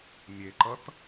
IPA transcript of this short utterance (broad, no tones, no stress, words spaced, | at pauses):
mʲeǃʌt